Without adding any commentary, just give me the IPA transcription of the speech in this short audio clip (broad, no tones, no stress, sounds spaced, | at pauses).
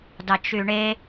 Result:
d ɑ t͡ʃ y ɳ e